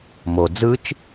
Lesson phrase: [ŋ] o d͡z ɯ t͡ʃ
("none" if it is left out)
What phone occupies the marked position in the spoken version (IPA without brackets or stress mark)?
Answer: m